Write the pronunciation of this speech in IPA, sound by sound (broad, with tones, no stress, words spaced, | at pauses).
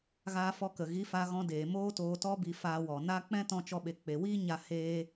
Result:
ɣaː˧fɔ˧kə˨ ɣi˨˦fa˧ɣɔ̃˧deː˨ moː˦toː˧ tɔ˦bi˧ faː˧wɔ˨ na˦ k͡pɛ̃˦tɔ̃˧t͡ʃɔ˧ ɓe˧ k͡pe˧ wiː˦ɲa˧ heː˦